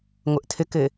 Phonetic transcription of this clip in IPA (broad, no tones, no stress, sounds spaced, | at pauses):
ŋʷ ə ʔ tʰ ɘ k ɘ